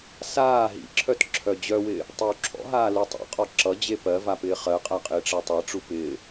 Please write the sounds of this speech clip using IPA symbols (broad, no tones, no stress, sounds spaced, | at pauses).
s aː ɦ ḭ ǁʰ œ t ǁʰ œ d͡ʑ œ w ɪː | tˤ i w ǁʰ ɔ̰ ɦ aː l u tˤ ḛ qʼ ɔ ǁ ʌ d͡ʑ e p ɜ v a p ɪː χ ɜ qʼ a qʼ ɪː ʈ͡ʂ ɜ tˤ e ʈ͡ʂ u p ɪː